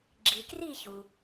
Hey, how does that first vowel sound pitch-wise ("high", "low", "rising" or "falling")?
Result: low